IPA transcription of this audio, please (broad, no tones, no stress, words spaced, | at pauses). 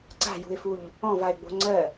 ǀa̤jṳɪ̯fuʎ | ɔ̃vaɪ̯ɡ͡bo̤ ŋ͡ǀɜ